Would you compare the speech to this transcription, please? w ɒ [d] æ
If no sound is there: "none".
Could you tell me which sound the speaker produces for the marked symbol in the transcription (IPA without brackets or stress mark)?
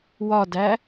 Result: d